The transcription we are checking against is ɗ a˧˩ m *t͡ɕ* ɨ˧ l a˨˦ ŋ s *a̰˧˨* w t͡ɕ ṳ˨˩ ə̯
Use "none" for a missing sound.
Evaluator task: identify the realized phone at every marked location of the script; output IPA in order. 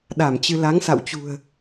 t͡ɕ, a̰˧˨

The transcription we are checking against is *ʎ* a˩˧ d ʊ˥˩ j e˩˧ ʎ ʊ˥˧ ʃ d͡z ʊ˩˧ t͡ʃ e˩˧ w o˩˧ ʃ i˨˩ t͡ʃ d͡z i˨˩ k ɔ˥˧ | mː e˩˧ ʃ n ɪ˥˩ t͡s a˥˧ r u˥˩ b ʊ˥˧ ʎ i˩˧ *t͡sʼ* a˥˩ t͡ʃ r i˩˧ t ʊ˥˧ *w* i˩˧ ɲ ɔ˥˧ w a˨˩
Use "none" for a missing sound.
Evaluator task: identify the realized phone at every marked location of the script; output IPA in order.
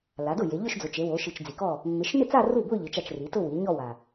l, t͡ʃ, w

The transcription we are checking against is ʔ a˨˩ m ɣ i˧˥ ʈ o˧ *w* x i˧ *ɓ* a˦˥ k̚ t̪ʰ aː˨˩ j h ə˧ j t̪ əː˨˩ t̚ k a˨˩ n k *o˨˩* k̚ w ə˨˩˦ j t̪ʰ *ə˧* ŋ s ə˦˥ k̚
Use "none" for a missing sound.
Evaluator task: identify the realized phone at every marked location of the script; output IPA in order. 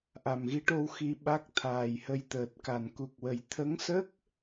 w, ɓ, u˨˩, ə˧˥

